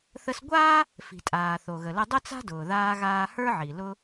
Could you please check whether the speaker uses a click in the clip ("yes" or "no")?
no